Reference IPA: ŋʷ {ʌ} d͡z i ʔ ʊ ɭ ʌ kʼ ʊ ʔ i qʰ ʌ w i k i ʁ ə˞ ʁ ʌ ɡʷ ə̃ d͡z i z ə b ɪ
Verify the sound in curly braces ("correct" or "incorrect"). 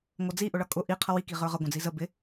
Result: correct